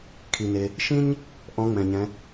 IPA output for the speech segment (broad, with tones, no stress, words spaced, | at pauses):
kʰi˩ne˩ | ʃĩ˥ɲ | ʔɔ̃˧˥ŋ͡mɛ̃˩ɲɛ̃˩˧